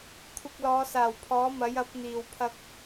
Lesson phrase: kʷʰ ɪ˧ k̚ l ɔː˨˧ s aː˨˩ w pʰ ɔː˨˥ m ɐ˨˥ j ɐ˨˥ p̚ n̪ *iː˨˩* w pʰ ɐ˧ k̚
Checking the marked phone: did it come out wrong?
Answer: no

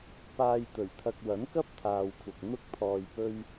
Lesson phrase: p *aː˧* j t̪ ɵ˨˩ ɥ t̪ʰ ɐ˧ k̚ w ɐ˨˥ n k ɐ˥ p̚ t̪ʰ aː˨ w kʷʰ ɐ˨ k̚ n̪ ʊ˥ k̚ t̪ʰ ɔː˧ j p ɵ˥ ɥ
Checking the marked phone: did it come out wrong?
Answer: no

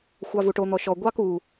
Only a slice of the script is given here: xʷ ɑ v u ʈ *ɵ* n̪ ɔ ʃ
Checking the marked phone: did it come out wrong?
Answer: yes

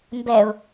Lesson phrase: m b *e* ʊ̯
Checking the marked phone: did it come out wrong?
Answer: yes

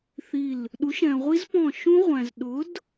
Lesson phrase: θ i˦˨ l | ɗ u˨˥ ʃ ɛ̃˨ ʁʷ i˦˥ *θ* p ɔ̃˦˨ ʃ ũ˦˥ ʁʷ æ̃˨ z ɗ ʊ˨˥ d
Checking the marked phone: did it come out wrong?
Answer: yes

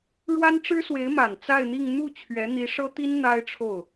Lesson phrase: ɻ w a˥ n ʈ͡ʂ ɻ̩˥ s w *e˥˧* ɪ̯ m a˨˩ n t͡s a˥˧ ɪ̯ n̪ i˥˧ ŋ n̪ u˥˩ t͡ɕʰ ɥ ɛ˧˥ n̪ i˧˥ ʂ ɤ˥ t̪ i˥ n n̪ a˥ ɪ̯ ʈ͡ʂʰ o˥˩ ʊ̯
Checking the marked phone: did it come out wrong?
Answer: yes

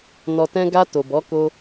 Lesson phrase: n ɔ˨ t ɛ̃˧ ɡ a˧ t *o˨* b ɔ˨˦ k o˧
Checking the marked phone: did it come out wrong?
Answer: no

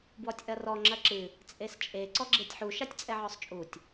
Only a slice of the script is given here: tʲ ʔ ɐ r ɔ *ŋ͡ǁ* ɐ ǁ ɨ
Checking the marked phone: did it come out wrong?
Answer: no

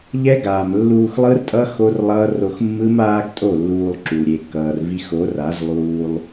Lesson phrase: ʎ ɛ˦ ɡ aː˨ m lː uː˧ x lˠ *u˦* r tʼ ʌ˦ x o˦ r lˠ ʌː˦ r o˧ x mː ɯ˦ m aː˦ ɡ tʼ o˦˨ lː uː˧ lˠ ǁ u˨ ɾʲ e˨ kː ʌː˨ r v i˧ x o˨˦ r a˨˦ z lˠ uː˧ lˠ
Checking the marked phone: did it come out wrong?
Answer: yes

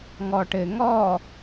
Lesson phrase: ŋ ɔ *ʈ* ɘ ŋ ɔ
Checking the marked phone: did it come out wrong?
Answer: no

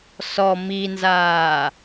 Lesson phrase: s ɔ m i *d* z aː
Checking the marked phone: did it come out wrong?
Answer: yes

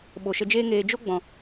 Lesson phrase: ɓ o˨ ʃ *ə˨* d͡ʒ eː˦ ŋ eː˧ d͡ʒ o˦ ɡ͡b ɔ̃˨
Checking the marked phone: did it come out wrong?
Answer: yes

